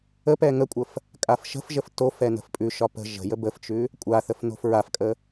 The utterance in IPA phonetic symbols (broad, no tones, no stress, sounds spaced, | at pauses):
ə p ɛ ŋ ə kʷʼ ə f | kʼ a f ʃ ə̤ f ʒ ə f t o f ɛ n ə̤ f pʼ ʉ ʃ ɒ p ə̤ ʒ ə̤ j ə b ə f t͡ʃ ʉ | kʷʼ a θ ə f n o̤ f ɹ a f kʼ ə